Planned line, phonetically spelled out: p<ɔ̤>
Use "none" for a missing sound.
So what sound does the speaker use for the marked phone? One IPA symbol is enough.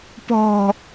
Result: ɔ̤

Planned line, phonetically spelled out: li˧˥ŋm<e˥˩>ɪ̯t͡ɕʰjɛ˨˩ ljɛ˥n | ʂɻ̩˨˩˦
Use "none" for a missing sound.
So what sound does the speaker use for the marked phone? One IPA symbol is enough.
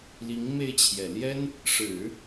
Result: e˥˩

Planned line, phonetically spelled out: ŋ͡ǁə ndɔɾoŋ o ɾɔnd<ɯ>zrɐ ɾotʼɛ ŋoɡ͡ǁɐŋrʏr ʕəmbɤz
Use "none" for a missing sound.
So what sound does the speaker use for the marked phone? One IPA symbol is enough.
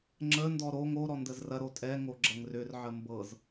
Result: ə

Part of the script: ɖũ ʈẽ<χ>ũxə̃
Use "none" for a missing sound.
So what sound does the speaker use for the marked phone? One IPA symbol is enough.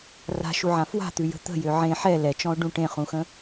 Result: χ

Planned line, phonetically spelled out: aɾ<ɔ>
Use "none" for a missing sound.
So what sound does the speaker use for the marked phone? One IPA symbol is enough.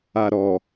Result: ɔ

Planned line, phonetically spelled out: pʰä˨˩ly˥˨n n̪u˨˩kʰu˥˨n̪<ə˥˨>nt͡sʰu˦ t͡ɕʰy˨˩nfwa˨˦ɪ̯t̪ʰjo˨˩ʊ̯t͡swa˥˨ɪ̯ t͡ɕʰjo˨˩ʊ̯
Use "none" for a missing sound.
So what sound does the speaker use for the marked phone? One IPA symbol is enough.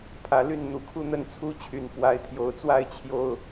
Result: ə˥˨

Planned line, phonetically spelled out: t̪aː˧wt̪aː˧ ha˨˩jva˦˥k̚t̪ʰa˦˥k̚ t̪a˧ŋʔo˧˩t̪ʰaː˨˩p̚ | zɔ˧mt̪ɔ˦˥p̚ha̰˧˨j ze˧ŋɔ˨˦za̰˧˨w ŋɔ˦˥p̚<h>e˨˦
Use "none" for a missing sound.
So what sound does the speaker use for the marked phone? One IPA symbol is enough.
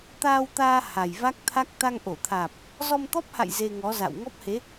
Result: h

